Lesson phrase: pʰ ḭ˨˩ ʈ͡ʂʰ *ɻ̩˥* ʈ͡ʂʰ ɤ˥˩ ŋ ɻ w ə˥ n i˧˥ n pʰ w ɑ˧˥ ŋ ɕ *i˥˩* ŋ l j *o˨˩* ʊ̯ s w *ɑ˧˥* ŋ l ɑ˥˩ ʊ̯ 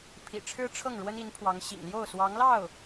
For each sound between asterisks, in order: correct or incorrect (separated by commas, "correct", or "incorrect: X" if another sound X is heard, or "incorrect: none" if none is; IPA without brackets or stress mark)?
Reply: correct, incorrect: ḭ˨˩, incorrect: o˥˩, correct